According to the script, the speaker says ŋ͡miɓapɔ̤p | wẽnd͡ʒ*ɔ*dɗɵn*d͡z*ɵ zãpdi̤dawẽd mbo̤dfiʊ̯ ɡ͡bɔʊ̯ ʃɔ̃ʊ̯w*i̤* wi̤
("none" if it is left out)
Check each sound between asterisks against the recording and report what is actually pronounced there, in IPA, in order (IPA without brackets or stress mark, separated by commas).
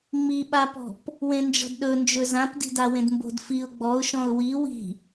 ɔ̤, d͡ʒ, i